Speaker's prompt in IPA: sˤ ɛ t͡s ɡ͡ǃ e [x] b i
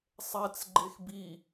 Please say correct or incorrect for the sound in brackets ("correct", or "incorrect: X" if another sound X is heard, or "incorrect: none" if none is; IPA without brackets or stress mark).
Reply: correct